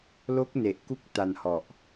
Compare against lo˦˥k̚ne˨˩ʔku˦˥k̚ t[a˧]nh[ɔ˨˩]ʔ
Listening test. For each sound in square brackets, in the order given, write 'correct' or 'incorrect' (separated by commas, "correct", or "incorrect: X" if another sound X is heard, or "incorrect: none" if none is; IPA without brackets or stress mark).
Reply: correct, correct